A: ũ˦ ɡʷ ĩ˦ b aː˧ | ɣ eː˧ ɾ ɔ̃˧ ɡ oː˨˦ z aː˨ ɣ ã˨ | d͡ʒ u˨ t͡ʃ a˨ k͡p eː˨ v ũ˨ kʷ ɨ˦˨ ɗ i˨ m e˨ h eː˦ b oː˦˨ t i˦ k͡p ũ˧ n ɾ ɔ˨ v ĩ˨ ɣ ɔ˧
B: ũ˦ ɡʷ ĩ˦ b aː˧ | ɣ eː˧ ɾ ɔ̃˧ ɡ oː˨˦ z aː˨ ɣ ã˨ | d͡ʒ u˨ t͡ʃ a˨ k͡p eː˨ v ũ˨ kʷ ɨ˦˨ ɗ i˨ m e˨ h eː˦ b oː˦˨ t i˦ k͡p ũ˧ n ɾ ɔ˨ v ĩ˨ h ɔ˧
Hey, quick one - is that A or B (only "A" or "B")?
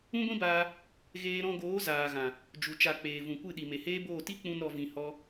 B